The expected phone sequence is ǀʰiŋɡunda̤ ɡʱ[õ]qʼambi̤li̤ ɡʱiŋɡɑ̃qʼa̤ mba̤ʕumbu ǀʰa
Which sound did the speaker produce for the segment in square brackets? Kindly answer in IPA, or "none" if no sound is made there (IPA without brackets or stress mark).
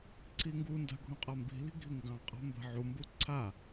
õ